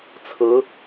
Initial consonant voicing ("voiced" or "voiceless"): voiceless